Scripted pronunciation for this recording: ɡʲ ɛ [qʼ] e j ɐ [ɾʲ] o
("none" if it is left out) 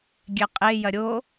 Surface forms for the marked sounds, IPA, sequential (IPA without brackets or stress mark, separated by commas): qʼ, ɾʲ